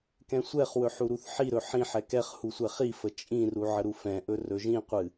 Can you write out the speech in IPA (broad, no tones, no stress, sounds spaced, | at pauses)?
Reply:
k ɛ̃ sʷ ɛ χ w ɵ ħ u ɾ u θ ħ i ɾ ɵ ħ ĩ ħ ɛ k ɛ χ h u sʷ ɛ χ i f ə t͡ʃʼ ĩ r u ʕ ə ɾ u f ɛ̃ ʔ ɵ r ɵ ʒ ĩ qʷ ɨ